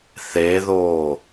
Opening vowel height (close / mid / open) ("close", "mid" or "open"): mid